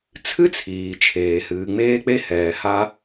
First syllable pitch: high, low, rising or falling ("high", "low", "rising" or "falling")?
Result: high